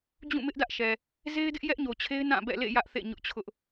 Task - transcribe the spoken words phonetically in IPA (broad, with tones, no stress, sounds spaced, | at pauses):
d͡ʑ ũ˦˨ m ɪ˦ ʔ d ä˦ ʔ ʃ ɛ˨ | z e˦ ɪ̯ d ɪ˦ ʔ j ɛ˦ ʔ ɲ o˨ t͡ɕʰ e˦ ɪ̯ n ã˦˨ b ɛ̰˦˨ l ḛ˦˨ j ä˦ ʔ θ ḛ˦˨ ɲ ʊ˦ ʔ t͡ɕʰ ʊ˦ ʔ